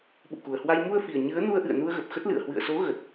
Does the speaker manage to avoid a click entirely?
yes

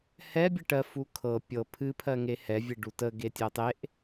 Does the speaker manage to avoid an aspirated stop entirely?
no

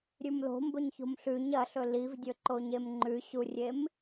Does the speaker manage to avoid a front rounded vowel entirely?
yes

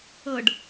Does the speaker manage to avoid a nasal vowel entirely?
yes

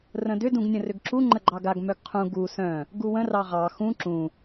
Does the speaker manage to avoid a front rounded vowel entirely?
no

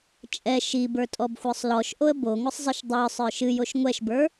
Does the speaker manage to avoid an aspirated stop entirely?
yes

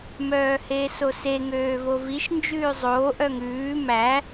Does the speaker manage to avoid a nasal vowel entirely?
yes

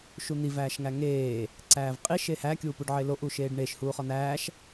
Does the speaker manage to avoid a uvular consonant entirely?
no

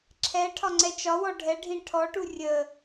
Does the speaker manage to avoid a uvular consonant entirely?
yes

